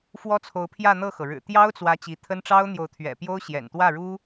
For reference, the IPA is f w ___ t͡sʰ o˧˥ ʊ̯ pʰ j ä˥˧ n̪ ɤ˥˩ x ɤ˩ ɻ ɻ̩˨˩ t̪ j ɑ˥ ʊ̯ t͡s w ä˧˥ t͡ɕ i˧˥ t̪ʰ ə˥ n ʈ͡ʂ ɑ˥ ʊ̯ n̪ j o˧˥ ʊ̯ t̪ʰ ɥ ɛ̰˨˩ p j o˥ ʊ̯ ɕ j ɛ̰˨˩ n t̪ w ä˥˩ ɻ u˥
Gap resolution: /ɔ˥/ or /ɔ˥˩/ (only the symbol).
ɔ˥